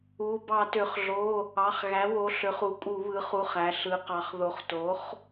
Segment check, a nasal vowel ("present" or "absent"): absent